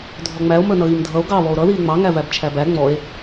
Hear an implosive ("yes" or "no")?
no